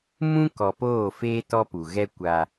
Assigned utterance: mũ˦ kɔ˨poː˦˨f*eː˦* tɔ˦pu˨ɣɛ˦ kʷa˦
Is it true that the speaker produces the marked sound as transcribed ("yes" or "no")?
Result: yes